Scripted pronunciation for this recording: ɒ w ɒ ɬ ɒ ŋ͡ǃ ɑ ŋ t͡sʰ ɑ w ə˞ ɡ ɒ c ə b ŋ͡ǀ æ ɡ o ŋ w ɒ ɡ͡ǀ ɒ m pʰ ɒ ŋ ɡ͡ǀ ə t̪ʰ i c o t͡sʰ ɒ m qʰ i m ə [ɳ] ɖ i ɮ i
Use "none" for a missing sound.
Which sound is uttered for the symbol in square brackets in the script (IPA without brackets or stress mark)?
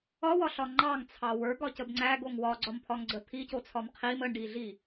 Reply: ɳ